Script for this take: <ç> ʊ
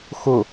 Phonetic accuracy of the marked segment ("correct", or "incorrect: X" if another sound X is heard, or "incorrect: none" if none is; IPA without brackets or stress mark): incorrect: x